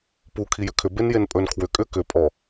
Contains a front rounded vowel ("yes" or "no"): yes